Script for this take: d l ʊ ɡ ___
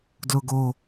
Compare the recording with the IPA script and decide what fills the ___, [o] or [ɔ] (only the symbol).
o